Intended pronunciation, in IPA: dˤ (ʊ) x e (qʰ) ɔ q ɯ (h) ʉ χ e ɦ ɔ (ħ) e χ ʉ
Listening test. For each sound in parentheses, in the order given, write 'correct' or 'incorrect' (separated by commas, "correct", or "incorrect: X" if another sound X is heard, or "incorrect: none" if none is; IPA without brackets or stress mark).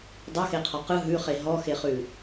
incorrect: ɵ, correct, incorrect: ɦ, incorrect: x